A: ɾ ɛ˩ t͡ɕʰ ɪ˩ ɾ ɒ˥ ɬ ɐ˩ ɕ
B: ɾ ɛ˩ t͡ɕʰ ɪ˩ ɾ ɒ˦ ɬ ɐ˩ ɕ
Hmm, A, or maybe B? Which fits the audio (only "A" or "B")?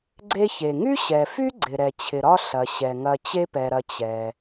B